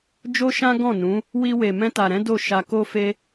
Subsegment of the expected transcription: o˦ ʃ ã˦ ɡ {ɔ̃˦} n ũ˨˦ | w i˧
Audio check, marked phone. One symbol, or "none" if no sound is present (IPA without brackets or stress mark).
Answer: ɔ̃˦˨